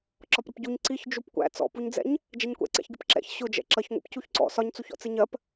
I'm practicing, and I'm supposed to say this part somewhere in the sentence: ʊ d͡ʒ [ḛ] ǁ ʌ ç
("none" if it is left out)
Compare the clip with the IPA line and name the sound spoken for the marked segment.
ɛ̰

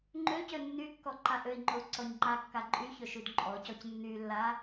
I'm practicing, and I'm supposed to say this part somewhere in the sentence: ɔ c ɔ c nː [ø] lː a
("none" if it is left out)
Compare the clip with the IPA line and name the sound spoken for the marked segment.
y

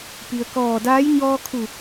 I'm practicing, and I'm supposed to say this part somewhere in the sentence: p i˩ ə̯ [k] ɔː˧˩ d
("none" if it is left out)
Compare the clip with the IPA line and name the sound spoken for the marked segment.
k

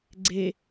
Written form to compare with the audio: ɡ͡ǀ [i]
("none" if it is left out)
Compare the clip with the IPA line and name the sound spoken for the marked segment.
e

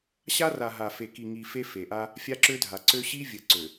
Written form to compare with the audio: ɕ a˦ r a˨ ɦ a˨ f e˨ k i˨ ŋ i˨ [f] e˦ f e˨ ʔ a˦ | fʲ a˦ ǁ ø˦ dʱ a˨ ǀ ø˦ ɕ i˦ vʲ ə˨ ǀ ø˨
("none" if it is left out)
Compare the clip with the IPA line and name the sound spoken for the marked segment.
f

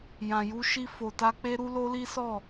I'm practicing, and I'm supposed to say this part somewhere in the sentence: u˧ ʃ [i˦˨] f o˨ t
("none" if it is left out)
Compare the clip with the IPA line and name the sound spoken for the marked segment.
i˧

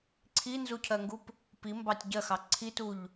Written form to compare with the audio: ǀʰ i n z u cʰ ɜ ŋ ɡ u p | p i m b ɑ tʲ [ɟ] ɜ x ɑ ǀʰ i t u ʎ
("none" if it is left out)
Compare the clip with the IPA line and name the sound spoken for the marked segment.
ɟ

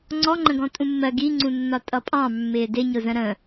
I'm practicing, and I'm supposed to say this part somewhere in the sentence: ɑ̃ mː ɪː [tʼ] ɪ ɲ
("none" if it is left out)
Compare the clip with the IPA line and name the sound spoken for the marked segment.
d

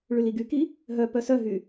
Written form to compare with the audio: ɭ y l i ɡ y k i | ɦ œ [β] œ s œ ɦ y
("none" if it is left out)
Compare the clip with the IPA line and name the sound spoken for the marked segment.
p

